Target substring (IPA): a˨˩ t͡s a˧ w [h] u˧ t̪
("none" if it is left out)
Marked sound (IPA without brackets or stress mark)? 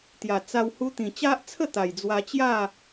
h